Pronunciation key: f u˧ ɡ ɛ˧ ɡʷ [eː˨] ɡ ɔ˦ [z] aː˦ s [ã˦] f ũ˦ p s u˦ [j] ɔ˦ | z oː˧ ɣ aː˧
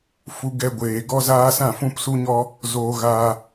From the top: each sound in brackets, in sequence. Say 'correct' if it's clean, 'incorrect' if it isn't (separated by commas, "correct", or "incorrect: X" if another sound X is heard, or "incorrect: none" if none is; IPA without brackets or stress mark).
correct, correct, incorrect: ã˦˨, incorrect: ɲ